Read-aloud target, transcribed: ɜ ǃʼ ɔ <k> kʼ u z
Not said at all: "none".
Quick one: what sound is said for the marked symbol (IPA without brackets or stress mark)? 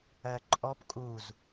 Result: p